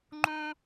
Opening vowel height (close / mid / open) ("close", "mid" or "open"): close